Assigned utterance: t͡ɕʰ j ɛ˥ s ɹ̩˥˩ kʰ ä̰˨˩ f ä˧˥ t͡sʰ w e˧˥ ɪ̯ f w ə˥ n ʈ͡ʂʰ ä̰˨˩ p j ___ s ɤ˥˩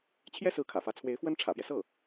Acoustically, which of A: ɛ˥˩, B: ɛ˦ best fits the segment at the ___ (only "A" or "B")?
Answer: B